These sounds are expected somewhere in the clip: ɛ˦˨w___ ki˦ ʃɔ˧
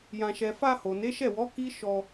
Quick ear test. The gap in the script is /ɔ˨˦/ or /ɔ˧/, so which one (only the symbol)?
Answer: ɔ˨˦